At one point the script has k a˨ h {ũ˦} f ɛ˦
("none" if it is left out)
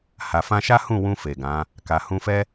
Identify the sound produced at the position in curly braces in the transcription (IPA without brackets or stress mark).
ũ˧